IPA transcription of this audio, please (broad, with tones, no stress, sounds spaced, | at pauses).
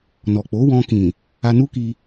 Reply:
n ɔ˨ k͡p o˨˦ w ɔ̃˧ k ĩ˨ | a˧ n u˦ k i˧